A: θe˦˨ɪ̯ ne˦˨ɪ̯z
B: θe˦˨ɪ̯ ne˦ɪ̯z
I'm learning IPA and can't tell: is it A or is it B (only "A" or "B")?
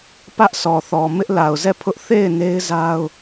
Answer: B